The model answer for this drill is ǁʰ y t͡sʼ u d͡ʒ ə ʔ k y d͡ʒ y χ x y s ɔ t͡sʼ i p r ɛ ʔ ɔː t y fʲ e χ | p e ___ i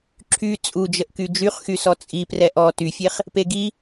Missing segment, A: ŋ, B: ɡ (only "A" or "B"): B